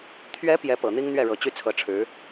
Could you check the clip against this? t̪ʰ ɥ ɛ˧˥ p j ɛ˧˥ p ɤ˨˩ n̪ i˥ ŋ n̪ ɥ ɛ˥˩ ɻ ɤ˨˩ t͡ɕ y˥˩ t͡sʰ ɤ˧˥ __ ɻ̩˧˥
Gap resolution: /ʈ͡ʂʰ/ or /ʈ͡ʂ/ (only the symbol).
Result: ʈ͡ʂʰ